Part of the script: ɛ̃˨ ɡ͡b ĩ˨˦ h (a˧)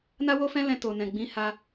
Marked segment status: correct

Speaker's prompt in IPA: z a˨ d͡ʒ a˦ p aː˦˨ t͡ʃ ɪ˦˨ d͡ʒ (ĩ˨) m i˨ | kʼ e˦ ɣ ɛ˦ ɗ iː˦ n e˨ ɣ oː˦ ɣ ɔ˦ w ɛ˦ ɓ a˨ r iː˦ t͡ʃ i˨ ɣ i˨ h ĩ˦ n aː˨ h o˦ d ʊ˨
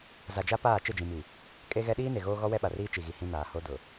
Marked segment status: correct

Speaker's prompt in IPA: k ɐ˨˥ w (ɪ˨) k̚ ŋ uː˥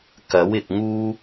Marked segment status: correct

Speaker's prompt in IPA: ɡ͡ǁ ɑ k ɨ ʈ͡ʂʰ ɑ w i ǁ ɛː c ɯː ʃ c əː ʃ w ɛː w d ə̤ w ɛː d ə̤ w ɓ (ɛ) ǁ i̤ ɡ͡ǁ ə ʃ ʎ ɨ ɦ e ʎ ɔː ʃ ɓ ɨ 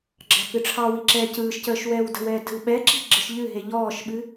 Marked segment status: correct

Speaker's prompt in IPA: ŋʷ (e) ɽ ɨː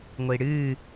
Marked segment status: incorrect: i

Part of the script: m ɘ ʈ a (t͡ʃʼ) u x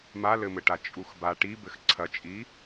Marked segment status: correct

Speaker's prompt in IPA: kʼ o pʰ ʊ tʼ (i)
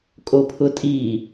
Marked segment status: correct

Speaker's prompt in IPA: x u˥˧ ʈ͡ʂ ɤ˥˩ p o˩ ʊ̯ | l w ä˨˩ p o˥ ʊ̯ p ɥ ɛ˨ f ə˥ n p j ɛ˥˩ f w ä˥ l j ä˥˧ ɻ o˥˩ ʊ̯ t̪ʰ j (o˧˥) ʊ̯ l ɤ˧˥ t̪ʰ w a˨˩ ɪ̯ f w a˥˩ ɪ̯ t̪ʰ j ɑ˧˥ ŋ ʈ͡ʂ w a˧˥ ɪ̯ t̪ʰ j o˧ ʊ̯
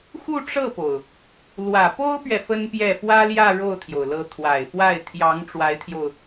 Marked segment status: incorrect: o˩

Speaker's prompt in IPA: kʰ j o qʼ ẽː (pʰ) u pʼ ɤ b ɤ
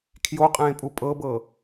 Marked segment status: incorrect: pʼ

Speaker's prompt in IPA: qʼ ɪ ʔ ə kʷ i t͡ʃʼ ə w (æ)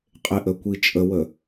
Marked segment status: incorrect: ə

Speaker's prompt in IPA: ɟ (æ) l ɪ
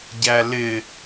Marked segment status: correct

